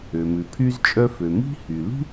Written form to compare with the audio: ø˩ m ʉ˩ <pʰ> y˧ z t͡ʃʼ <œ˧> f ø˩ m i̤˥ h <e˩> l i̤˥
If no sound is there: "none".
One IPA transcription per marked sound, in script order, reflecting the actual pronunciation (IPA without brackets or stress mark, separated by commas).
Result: pʰ, œ˧, y˩